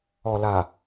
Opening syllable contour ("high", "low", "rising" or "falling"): low